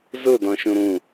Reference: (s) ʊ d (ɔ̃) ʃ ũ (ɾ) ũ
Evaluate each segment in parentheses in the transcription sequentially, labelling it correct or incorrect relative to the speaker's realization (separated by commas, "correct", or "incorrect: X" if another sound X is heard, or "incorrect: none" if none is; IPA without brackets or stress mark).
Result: incorrect: z, correct, correct